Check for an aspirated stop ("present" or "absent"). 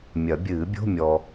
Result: absent